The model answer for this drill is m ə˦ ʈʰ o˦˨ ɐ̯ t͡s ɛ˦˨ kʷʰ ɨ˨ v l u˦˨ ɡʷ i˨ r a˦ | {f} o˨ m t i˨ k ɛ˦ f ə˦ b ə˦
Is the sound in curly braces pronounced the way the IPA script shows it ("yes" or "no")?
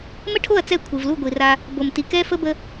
no